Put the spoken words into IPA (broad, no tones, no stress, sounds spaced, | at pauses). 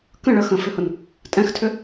k ə̃ ɭ ə x ə̃ f ʏ h ʊ n | tʼ ɛ̃ x tʰ ʏ